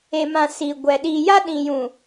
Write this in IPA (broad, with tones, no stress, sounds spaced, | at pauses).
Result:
e˨ m ã˨ s iː˨ ɡʷ ɛ˨ ɗ iː˨ j a˦ ɗ ĩ˨ j ũ˨